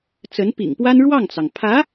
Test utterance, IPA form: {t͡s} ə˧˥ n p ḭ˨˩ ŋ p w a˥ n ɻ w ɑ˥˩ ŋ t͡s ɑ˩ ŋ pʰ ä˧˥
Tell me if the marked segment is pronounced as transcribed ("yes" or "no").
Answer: yes